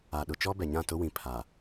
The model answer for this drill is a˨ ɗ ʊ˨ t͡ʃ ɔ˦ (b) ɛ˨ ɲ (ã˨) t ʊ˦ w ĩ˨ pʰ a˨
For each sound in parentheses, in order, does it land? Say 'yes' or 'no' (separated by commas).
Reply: yes, no